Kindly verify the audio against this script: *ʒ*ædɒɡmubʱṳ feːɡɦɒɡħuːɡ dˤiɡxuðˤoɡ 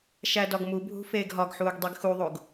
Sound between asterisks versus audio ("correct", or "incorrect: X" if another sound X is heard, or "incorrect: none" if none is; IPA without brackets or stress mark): incorrect: ʃ